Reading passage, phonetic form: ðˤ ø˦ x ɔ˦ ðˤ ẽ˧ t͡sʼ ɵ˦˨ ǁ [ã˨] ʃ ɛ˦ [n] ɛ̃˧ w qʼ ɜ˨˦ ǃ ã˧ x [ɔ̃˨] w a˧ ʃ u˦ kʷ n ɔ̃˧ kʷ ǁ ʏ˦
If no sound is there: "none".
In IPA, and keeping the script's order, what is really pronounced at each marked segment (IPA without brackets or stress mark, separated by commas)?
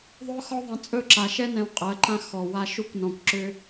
a˨, n, ɔ˨